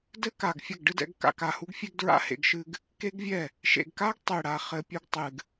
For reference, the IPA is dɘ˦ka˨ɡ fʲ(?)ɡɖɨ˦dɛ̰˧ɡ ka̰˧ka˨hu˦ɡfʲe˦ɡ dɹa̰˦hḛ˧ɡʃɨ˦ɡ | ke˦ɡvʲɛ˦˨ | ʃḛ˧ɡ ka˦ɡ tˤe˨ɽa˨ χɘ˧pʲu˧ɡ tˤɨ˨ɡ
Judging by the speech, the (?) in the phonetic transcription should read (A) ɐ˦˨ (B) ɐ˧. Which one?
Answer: A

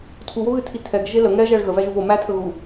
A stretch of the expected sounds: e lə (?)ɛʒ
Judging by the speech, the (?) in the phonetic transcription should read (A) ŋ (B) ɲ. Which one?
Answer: A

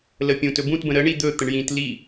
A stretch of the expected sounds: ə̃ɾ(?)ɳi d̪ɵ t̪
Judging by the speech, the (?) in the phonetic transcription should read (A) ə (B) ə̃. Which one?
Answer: A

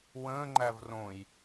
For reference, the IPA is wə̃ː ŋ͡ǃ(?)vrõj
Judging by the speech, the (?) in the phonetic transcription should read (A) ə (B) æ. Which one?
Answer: B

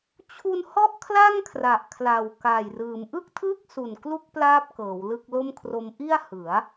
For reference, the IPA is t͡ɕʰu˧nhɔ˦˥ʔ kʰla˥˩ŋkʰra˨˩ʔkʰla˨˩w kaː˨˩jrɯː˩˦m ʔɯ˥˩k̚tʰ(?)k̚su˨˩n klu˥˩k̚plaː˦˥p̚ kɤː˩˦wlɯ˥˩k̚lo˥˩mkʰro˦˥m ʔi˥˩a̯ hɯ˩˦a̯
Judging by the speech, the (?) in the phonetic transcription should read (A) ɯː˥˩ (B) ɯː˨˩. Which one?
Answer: A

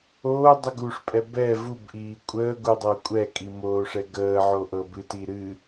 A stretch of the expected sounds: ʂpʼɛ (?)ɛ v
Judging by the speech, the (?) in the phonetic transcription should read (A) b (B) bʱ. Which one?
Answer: A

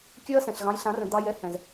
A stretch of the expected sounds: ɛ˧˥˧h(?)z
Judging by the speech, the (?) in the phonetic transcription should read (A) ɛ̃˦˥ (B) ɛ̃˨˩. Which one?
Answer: B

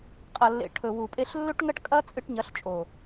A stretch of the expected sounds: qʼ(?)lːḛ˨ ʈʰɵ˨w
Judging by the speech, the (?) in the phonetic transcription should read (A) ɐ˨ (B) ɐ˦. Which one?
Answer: A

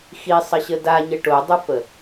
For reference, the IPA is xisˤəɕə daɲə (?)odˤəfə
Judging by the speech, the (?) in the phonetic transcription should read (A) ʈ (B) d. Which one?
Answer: A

